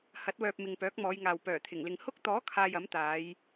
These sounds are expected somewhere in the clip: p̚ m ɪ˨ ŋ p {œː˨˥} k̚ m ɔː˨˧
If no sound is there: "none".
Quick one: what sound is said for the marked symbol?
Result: œː˨˥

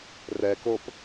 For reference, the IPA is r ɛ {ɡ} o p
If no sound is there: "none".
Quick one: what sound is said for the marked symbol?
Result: k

